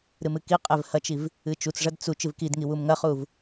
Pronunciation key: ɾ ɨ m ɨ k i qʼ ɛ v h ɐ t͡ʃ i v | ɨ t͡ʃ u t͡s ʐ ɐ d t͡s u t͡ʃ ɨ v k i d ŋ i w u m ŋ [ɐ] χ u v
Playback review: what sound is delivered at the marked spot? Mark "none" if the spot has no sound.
ɐ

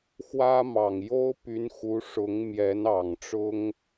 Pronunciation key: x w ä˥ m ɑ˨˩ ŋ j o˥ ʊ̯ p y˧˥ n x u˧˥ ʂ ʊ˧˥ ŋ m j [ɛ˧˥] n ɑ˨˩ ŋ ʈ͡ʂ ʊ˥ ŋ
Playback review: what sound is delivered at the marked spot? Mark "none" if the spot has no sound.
ɛ˧˥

